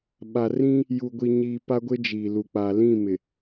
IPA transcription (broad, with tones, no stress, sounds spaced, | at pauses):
ɓ a˨ r ĩ˦ | j u˨ ɡʷ i˨ ɲ iː˨ p a˦ ɡʷ ɪ˦ d͡ʒ iː˨ l u˨ k͡p a˨ l ĩ˦˨ m ɪ˨